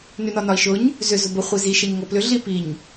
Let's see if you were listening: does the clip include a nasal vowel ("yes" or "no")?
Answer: no